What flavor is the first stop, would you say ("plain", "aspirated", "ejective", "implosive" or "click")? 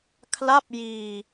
aspirated